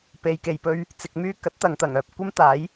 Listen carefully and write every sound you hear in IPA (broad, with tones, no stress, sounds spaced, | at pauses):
p e˨ j k e˨ j p ɵ˧ ɥ | t͡s ɪ˨ k̚ m yː˧ k ɐ˨˥ t̚ t̪ ɐ˨ ŋ t̪ ɐ˨˩ ŋ œː˨ p̚ kʷ ɐ˥ m t̪ aː˨˥ j